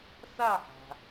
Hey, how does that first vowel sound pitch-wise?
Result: falling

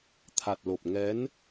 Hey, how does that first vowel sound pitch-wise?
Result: low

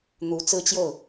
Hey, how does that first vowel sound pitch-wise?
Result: rising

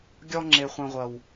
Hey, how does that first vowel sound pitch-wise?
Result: high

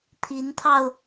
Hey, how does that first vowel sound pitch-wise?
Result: rising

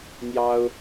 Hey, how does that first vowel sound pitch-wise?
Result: high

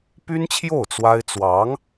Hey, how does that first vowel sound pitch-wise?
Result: high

